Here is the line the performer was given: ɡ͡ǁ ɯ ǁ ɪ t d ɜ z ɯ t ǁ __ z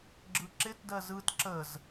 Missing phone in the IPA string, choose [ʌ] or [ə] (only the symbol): ə